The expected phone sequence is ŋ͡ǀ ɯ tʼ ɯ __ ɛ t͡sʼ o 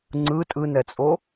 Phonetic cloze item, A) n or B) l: A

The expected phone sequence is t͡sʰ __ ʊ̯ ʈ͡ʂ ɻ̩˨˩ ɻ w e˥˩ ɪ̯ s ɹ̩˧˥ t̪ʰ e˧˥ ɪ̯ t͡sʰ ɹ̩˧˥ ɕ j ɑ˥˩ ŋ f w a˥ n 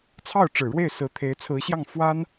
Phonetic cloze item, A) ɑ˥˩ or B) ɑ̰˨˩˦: A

